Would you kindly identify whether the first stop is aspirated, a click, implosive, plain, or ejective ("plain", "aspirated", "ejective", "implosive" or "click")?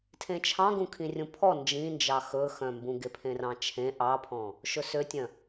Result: aspirated